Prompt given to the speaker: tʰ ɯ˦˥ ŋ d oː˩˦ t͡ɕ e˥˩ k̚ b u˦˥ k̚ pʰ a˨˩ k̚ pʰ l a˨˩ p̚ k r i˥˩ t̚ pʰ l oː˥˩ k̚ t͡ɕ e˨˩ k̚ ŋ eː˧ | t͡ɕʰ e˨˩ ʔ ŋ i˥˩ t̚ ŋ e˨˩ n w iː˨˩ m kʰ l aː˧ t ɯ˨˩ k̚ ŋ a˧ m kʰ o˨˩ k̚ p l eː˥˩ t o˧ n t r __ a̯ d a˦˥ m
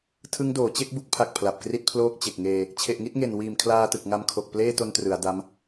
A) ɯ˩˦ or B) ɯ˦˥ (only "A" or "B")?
A